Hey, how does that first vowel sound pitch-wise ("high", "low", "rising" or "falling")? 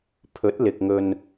rising